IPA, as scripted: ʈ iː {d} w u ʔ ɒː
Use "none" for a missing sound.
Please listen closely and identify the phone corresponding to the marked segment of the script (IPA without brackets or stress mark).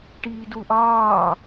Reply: d